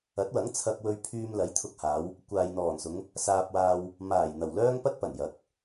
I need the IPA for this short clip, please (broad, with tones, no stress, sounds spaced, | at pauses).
ɐ˨˥ t̚ w ɐ˨˥ ŋ t͡sʰ ɐ˧ k̚ w ɵ˧ ɥ pʰ yː˧ m l ɐ˨˥ j t̪ʰ ʊ˧ k̚ h aː˨˧ w | kʷ aː˨ j n̪ ɔː˨˩ n s ʊ˨˧ ŋ | s aː˧ p̚ w aː˧ w | m aː˨˩ j n̪ ɐ˨˩ w l œː˥ ŋ p ɐ˥ t̚ p ɐ˨˩ n j ɐ˨˥ k̚